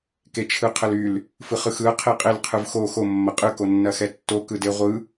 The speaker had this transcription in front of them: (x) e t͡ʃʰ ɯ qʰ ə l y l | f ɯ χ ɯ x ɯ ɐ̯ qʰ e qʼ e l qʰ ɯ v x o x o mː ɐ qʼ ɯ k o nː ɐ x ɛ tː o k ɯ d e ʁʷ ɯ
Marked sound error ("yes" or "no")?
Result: yes